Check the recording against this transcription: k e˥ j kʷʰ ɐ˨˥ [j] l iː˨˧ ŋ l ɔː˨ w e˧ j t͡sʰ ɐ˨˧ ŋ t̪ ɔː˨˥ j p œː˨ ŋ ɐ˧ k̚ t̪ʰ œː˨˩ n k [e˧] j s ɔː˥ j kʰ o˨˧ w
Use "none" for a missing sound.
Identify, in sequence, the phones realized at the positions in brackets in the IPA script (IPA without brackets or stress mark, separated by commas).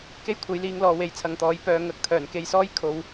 j, e˧